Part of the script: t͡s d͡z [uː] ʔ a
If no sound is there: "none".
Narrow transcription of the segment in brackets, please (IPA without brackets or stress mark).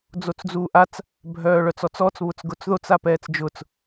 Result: uː